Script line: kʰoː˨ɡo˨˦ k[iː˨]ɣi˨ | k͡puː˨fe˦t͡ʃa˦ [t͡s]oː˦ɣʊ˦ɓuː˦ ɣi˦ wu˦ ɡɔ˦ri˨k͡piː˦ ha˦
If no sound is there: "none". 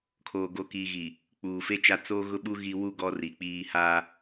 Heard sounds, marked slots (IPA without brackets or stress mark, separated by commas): iː˨, t͡s